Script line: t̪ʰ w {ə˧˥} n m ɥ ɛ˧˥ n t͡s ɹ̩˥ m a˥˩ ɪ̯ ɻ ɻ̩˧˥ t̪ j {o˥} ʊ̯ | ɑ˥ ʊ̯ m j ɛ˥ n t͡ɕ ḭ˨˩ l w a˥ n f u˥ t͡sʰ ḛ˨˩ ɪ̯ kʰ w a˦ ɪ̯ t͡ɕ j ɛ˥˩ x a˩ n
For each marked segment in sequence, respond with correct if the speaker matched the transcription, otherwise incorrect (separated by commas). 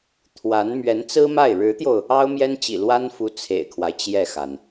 incorrect, incorrect